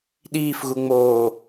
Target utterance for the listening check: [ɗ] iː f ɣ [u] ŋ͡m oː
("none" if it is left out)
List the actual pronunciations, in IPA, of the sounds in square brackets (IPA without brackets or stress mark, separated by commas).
ɗ, u